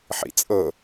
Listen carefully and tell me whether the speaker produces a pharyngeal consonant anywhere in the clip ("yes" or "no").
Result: yes